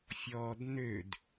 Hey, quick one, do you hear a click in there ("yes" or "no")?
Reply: no